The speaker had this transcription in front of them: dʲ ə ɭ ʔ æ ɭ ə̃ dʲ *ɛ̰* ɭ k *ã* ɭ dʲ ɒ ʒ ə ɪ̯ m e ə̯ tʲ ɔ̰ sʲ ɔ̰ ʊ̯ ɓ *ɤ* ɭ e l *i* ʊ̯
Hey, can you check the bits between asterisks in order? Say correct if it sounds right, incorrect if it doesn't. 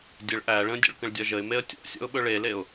incorrect, incorrect, incorrect, incorrect

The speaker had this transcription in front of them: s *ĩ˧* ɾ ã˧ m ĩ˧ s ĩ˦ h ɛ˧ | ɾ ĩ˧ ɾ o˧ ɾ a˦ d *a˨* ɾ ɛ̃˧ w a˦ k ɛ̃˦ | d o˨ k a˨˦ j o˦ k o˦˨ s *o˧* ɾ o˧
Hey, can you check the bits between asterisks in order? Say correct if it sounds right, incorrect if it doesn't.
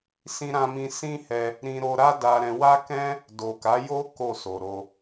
correct, incorrect, incorrect

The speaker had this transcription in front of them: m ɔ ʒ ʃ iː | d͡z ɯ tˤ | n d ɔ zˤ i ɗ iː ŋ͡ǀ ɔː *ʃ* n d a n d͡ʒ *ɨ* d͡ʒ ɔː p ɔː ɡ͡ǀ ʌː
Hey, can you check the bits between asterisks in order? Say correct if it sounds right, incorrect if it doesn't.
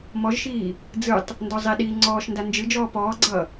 correct, correct

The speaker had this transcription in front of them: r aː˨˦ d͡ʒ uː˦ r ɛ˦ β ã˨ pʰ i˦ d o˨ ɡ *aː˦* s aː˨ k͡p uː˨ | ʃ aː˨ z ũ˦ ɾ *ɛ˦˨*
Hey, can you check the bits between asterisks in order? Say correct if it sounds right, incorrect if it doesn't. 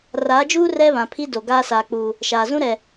correct, incorrect

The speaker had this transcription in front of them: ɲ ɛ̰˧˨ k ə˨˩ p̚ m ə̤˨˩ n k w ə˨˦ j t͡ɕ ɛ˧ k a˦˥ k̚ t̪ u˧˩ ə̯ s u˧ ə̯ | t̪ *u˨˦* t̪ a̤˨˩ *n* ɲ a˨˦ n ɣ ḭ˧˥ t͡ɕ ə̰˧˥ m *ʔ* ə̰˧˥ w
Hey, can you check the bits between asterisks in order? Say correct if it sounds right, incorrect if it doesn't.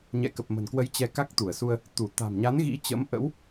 incorrect, incorrect, correct

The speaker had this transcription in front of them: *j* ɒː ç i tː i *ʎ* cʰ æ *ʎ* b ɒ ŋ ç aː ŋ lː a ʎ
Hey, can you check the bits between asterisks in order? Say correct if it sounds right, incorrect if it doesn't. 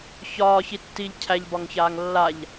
incorrect, correct, correct

